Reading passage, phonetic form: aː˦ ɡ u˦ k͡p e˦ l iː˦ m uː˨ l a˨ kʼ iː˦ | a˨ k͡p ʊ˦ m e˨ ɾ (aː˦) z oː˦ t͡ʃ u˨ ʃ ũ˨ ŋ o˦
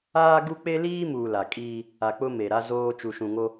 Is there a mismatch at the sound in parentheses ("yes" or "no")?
yes